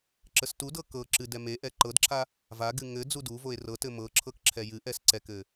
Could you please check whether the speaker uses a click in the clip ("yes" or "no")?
yes